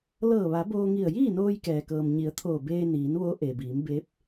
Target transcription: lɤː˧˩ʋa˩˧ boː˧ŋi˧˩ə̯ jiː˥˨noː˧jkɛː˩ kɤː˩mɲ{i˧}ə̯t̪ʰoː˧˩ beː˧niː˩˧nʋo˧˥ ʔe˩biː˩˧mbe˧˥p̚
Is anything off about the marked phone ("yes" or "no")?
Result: yes